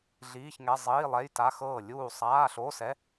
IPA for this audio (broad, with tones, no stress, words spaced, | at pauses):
ɮiː˧˥˧çŋɛ˧˥˧ zˤiː˧˥˧lˠɛ˧˥˧jta˧˥˧ xɤː˥˨lʲuː˥˨ sˤaː˧˥˧ɬo˧˥˧sɛ˧˥˧